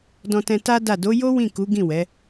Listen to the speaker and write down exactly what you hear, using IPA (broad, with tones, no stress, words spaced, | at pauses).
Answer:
dɔ̃˧tɛ̃˧ta˦ da˦˨ do˨˦jo˦ wĩ˦˨ku˨˦ɡĩ˦˨ wɛ˨˦